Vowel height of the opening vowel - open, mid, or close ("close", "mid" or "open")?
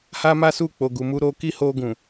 open